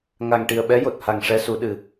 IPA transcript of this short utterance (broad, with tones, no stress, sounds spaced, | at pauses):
ŋ a˨˩ ŋ ʈ i˨˩ ə̯ ɓ ɛ˧˥ j o˨˩ t̚ h a˨˩ ŋ ʂ ɛ˧˥ s u˨˩˦ ɗ ɨ˨˩˦